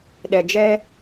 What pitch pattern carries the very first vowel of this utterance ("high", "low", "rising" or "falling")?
low